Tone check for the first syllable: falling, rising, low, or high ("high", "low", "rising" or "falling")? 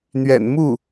low